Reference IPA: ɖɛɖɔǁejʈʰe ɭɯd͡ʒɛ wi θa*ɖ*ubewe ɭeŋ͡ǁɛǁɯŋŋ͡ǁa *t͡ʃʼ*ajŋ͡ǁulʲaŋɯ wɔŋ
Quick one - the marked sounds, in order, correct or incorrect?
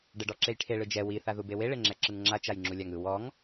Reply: incorrect: ð, incorrect: t͡ʃ

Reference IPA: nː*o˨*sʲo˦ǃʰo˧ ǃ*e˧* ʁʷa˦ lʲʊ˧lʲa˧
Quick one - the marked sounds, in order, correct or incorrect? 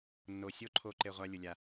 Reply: correct, correct

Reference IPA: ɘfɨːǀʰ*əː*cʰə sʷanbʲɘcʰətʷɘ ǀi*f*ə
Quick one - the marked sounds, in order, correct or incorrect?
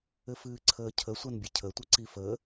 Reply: correct, correct

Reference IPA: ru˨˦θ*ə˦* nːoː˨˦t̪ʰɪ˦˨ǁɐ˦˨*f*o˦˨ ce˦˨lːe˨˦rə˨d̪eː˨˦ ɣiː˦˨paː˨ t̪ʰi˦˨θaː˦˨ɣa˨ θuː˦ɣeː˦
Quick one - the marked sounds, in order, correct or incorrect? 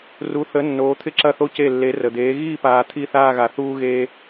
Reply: incorrect: ə˨˦, incorrect: θ

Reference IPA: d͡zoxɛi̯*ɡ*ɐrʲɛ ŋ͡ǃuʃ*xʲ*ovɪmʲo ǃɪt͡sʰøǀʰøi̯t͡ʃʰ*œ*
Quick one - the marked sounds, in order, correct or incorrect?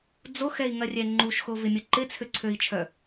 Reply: incorrect: ŋ, incorrect: x, correct

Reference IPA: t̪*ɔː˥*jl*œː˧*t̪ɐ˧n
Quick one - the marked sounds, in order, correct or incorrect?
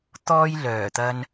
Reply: correct, incorrect: œː˨˩

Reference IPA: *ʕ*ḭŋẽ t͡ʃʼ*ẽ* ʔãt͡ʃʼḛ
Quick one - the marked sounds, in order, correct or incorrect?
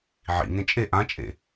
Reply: correct, incorrect: e

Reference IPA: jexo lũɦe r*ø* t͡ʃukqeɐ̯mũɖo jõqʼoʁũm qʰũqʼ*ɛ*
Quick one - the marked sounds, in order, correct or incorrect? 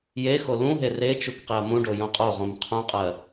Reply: incorrect: e, incorrect: ɜ

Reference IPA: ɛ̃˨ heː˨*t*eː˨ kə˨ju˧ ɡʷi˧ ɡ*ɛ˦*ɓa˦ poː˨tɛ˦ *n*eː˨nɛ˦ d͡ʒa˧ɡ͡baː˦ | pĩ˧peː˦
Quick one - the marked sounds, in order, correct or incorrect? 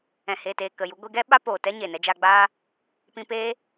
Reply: correct, correct, incorrect: ɲ

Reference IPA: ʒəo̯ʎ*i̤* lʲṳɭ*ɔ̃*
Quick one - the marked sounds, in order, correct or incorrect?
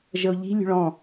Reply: correct, correct

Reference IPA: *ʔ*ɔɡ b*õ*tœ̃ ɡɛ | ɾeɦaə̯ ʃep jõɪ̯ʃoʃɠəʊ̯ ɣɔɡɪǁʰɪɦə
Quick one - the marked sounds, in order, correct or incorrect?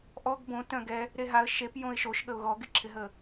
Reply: correct, correct

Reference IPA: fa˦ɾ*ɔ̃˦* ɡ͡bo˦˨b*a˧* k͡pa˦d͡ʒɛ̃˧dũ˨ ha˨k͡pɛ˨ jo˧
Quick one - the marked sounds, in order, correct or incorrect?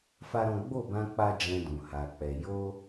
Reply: correct, incorrect: ã˧

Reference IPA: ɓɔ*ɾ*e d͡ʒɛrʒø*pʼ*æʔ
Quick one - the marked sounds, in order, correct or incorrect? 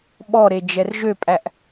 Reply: correct, correct

